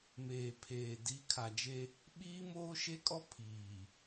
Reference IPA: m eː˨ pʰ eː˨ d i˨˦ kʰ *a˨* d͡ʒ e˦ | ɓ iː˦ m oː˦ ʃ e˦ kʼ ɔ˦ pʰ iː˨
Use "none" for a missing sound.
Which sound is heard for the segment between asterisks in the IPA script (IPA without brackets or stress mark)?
a˨